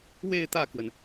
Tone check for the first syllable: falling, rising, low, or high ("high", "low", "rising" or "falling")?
falling